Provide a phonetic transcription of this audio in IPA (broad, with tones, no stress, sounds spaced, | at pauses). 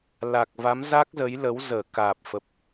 l a˨˩ k̚ v a˨˦ m z a˦˥ k̚ z ə˨˦ j l ə˨˦ w z əː˧˩ k aː˨˩ p̚ f ə˨˩ p̚